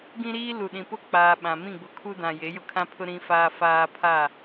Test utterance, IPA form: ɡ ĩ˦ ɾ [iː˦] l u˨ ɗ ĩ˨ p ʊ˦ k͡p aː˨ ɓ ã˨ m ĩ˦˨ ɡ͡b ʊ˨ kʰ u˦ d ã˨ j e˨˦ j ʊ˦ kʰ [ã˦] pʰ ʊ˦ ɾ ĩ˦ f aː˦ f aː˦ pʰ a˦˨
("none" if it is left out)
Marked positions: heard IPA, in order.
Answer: iː˦, ã˦

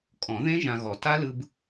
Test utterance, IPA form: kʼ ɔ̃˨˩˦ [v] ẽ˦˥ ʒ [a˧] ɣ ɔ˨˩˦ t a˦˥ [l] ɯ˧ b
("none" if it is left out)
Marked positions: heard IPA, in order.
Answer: ð, ã˧, l

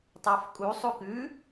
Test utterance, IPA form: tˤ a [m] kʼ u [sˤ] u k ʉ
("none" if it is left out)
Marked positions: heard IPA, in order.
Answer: f, sˤ

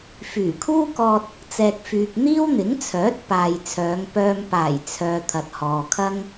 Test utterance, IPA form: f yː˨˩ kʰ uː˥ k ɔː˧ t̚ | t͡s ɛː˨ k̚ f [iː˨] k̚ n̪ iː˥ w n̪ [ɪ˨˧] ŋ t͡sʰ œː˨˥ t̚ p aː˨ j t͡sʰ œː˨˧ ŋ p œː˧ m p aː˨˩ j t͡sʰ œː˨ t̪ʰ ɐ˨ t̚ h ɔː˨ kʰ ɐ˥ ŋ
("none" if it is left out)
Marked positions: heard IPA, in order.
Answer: yː˨, ɪ˨˥

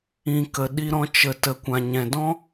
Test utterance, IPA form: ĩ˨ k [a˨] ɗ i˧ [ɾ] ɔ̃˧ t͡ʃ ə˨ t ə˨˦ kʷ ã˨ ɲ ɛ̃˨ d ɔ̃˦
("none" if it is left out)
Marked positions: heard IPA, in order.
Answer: ə˨, ɾ

